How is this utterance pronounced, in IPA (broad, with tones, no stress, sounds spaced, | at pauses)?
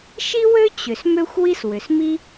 ʃ i˥ w ø˥ t͡ɕ ʏ˩ s m ø˥ xʷ w i˥ s w ʏ˩ s m i˥